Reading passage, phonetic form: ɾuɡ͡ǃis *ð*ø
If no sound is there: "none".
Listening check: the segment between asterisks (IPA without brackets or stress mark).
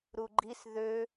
ð